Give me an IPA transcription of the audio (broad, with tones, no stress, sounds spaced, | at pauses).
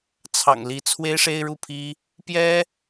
t͡sʰ ɑ̰˨˩ ŋ l i˧˥ t͡sʰ w e˥ ɪ̯ ʂ e˥ ɪ̯ ɻ u˥˩ pʰ i˥ | p j ɛ˥